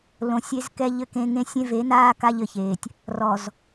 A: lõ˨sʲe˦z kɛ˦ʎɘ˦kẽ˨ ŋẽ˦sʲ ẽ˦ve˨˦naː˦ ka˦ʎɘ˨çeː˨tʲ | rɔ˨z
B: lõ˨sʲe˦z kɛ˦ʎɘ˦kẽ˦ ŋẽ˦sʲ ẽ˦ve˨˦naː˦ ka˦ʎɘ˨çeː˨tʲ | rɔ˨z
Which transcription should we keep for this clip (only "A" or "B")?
B